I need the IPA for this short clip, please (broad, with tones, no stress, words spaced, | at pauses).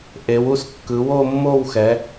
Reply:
ʔe˩˧wu˦˨skːɯ˩˧ wo˦˨mːo˦˨wxɛ˩˧